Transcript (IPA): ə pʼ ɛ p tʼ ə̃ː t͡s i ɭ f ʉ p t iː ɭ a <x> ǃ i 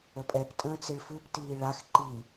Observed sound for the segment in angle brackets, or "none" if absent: x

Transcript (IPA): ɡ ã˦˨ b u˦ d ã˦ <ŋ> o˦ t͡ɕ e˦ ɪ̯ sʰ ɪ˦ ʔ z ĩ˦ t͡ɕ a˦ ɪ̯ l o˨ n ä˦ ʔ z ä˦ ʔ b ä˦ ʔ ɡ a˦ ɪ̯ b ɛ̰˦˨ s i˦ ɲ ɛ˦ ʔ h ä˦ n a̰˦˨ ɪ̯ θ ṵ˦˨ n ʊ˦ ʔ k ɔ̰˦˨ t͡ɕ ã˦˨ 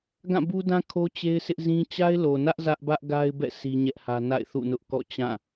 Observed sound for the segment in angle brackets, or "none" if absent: kʰ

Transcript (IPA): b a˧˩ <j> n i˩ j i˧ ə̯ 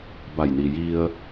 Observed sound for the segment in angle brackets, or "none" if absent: j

